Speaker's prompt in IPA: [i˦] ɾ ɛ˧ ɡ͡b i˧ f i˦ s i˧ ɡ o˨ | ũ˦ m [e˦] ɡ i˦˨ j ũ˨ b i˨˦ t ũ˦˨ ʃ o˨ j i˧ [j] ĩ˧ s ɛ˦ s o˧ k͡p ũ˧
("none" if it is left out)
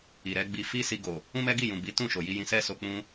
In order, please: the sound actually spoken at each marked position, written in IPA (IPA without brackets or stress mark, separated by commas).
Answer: i˨, ɛ˦, j